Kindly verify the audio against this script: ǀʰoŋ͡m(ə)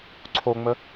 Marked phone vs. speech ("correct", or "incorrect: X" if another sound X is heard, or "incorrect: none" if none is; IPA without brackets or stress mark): correct